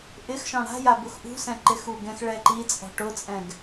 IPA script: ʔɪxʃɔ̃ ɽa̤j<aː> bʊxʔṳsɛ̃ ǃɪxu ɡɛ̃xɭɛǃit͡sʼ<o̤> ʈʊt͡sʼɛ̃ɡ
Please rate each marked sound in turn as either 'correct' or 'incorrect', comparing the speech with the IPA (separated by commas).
incorrect, incorrect